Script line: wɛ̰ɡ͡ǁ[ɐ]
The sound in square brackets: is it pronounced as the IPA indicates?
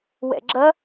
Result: yes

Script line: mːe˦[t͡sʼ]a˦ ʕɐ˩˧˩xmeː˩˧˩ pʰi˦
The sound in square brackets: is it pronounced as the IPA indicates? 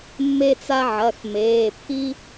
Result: no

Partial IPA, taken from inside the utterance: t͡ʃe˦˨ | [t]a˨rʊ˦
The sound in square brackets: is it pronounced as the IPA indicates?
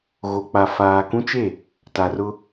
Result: yes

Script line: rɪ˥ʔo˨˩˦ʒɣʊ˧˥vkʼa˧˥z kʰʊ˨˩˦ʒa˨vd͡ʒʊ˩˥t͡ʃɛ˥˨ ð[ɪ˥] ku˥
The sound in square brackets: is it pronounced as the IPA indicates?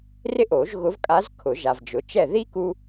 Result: no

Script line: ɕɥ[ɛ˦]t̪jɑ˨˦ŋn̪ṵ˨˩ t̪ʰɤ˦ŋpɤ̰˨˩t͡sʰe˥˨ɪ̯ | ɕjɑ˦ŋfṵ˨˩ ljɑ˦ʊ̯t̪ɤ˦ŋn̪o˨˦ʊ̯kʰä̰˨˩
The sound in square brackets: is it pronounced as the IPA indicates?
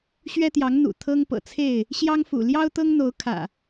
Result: yes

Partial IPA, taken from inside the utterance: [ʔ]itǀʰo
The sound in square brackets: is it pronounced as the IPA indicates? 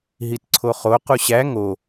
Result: no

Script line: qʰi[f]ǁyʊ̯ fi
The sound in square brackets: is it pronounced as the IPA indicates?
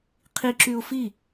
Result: no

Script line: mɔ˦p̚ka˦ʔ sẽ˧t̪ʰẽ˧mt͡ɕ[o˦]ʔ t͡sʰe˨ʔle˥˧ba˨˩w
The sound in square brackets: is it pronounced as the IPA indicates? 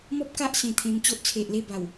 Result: yes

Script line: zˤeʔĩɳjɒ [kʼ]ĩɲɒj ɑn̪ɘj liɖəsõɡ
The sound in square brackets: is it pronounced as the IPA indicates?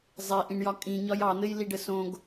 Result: yes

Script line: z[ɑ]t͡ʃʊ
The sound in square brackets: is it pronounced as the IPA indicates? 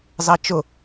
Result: yes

